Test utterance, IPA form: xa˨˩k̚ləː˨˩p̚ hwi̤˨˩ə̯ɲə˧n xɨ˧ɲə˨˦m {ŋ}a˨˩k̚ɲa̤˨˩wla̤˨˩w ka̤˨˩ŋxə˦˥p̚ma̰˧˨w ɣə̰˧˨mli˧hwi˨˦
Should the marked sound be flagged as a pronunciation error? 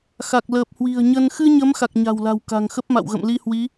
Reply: yes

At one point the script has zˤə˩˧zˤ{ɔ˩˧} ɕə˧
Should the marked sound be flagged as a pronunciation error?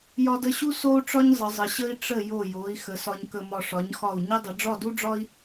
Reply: yes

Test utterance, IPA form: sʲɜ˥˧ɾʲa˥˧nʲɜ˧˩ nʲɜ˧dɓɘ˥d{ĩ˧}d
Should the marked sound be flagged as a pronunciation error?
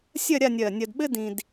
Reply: no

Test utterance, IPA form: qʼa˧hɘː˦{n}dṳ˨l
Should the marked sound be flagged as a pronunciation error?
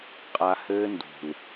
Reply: no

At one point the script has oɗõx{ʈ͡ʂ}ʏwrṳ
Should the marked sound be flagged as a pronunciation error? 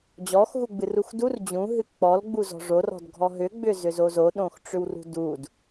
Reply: no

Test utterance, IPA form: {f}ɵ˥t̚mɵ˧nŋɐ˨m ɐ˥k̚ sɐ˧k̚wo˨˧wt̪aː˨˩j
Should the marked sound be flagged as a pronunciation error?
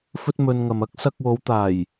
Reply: no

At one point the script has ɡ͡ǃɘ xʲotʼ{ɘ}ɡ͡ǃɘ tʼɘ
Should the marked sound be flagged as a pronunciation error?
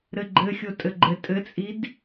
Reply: no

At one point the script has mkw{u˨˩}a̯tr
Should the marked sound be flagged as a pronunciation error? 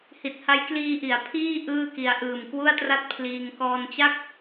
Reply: yes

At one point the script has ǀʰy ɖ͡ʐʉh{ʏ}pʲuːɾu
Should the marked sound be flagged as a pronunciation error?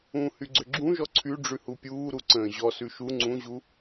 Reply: yes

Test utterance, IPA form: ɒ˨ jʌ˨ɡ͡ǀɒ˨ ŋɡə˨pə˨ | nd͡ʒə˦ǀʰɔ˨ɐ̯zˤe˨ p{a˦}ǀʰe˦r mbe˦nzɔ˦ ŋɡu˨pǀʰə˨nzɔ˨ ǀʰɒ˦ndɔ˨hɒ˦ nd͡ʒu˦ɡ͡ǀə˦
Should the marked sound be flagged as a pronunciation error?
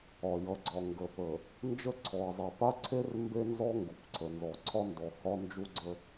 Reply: no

